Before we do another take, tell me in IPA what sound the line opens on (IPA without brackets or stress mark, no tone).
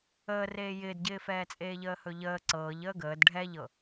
əː